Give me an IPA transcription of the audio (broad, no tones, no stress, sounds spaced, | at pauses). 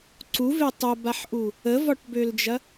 ǀ u v e tˤ ɐ b a ħ ʔ u | ə v ɒ ʈ b ø l d͡ʒ ɐ